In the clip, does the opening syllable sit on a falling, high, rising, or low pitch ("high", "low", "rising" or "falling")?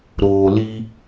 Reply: low